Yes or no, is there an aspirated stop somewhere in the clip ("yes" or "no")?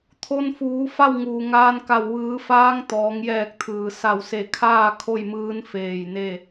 yes